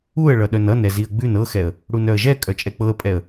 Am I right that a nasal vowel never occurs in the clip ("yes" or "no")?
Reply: yes